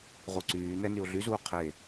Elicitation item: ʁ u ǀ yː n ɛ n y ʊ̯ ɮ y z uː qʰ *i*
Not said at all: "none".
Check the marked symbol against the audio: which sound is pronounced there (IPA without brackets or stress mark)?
e